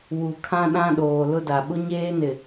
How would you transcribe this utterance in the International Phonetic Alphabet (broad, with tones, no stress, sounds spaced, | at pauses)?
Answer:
w u˨ kʰ ã˦ ɗ ã˦ ɗ oː˨ l ʊ˦ d a˨ ɓ ʊ˦ ɲ eː˦ n ɪ˨